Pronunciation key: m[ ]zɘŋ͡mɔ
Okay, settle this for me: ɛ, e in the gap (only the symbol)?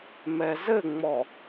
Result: ɛ